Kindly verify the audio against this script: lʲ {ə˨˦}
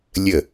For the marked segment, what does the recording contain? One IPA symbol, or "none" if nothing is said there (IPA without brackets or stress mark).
ə˧˩